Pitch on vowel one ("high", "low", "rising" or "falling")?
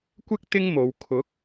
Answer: high